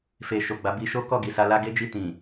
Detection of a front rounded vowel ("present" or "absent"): absent